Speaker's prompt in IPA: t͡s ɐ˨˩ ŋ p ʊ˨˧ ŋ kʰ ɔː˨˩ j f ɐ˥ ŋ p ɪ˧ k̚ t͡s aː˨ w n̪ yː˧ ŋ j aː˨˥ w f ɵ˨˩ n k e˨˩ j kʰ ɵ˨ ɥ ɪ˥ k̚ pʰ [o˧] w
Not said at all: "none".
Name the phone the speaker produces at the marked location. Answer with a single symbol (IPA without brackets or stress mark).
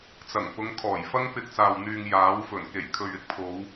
o˨˧